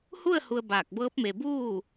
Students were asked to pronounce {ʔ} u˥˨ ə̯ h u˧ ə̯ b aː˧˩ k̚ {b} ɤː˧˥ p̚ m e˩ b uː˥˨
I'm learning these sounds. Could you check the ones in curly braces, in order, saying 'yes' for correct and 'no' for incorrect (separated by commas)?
no, yes